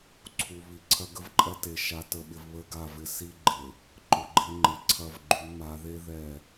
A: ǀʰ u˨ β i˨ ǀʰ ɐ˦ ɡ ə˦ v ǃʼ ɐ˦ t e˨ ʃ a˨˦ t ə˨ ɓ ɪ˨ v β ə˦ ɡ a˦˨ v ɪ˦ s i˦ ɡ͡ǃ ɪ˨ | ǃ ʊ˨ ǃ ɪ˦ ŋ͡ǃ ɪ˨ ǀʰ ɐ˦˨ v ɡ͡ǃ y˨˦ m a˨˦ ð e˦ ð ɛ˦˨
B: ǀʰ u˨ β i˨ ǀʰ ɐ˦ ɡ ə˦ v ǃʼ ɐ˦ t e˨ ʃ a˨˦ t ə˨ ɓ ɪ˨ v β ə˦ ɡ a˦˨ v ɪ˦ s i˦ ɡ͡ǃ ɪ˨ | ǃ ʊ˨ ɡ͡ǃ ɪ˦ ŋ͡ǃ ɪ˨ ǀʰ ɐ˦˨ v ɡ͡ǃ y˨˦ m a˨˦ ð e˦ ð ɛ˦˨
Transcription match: B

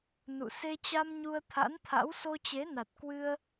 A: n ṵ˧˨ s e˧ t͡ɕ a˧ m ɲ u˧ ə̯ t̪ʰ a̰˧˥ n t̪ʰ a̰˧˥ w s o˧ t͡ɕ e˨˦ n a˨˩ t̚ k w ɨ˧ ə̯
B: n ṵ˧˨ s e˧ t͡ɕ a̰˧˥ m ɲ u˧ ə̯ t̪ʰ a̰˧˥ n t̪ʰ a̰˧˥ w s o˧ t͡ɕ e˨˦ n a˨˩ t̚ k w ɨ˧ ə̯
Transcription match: A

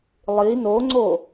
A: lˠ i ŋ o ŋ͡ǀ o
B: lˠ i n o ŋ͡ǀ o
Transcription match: B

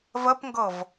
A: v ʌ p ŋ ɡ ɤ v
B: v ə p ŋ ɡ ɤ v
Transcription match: B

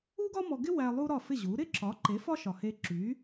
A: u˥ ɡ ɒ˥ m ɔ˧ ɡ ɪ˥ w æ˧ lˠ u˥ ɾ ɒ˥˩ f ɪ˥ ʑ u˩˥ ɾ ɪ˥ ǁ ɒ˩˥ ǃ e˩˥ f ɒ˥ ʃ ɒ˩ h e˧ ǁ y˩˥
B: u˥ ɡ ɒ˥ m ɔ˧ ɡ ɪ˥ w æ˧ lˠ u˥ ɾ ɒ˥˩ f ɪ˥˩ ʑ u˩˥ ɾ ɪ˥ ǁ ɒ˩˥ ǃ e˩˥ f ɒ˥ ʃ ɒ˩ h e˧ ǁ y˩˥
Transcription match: B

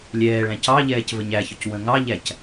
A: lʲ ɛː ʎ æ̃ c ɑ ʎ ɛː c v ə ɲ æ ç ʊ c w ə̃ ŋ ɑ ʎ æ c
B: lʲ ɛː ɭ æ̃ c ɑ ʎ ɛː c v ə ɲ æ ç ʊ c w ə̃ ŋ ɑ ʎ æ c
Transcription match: B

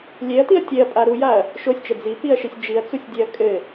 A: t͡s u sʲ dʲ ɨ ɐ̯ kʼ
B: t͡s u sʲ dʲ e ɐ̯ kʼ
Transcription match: B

